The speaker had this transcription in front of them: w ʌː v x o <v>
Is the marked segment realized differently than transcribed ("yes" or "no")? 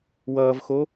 yes